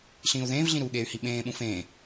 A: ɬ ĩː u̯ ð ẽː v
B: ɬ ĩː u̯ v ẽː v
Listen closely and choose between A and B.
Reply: A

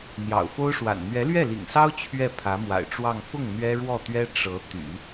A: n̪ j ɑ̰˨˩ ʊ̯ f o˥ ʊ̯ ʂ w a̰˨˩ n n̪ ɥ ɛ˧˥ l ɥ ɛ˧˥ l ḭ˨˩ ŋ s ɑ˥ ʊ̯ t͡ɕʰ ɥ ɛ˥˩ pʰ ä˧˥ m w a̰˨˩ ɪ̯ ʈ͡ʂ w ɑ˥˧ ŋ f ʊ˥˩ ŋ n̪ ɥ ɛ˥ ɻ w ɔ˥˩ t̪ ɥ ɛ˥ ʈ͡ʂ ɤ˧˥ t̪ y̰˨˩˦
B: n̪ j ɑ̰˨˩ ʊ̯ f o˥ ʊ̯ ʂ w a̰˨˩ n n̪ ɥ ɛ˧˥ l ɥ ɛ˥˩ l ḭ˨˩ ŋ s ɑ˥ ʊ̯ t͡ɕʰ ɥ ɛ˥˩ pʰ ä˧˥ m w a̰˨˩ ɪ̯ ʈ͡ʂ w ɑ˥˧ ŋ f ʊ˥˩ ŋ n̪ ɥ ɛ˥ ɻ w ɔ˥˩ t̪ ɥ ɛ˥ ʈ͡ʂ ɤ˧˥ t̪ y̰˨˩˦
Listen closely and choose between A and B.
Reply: B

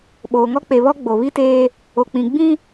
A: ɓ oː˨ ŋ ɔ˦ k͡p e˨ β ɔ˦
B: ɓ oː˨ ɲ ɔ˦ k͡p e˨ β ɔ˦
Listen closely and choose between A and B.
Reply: A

